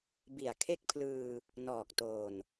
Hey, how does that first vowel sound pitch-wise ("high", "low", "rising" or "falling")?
low